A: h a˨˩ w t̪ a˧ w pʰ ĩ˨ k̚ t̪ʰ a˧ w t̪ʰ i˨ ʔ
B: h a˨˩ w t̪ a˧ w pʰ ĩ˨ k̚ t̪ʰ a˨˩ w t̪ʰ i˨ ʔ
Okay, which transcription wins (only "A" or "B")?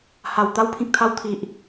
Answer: A